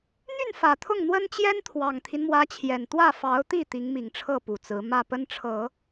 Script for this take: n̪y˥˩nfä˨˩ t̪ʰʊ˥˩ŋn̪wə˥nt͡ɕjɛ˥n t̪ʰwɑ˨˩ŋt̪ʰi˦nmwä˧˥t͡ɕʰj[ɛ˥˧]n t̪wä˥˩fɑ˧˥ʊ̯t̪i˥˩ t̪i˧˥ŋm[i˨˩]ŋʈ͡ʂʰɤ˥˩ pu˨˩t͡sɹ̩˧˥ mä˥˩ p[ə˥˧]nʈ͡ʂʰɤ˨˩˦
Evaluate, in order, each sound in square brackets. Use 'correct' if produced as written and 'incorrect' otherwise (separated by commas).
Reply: incorrect, correct, incorrect